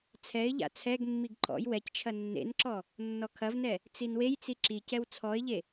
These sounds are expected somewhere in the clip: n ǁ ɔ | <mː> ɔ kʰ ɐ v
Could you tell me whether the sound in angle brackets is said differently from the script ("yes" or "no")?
yes